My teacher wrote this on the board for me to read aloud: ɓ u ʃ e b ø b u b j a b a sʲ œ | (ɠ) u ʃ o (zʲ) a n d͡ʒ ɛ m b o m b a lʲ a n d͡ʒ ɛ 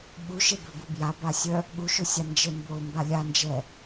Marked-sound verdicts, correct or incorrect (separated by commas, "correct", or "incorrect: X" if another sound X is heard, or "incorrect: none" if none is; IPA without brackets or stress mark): correct, incorrect: sʲ